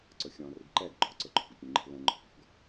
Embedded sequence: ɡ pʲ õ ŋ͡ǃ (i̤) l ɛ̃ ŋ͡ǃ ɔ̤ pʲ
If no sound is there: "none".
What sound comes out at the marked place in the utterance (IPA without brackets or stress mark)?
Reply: i̤